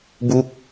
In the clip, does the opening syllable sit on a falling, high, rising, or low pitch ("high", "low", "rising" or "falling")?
falling